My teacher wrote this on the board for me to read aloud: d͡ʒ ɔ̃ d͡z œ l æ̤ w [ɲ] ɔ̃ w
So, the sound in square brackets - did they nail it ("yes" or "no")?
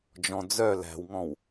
no